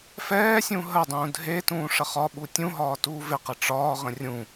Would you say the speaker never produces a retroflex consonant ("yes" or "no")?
no